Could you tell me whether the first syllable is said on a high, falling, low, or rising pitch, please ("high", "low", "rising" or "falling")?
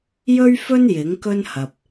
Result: high